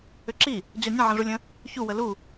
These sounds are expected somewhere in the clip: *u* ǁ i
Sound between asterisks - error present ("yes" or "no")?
yes